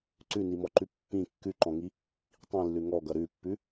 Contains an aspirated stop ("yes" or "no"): no